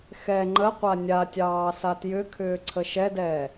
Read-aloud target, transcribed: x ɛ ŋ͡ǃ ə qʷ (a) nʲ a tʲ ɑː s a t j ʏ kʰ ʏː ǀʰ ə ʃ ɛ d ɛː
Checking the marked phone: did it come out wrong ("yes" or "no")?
no